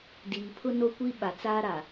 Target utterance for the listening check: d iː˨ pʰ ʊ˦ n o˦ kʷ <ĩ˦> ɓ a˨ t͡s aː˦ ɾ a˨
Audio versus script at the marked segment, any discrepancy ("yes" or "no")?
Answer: yes